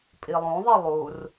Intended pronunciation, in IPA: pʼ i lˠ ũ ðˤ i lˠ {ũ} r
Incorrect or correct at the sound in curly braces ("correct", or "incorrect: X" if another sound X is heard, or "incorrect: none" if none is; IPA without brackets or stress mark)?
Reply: incorrect: u